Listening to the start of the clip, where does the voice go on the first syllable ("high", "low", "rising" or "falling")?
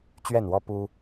falling